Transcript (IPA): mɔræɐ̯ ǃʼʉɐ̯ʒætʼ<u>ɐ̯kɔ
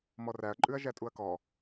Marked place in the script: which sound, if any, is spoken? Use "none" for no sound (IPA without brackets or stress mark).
u